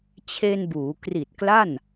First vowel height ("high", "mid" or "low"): mid